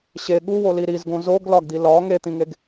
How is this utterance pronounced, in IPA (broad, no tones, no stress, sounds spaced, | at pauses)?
ɕ e ɠ u w o l i ɾ i z ɡ õ z o ɡ l ɒ ɡ d̪ i l ɒ ŋ e t̪ ĩ ŋ e ɡ